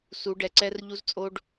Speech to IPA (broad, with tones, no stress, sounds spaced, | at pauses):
s u˨˦ ɖ ɛ˨ ǀ ɛ˦ r ʎ u˦ z t͡sʼ o˦ ɖ